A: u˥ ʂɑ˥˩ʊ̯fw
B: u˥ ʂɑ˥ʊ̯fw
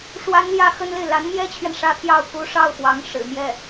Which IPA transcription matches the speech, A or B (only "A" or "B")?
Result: A